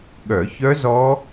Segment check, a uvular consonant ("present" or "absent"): absent